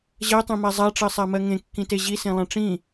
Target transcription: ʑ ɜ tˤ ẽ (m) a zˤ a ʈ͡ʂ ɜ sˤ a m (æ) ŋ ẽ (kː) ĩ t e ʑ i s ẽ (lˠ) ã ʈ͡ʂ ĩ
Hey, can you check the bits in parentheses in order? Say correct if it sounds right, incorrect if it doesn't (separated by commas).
correct, incorrect, correct, correct